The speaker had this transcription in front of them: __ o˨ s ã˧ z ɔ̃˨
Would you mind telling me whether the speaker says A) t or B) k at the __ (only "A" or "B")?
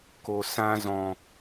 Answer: B